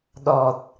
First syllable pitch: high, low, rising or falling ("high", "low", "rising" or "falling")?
low